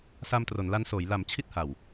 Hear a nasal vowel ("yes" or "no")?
no